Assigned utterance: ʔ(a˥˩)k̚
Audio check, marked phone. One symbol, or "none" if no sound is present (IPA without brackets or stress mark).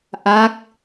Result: a˦˥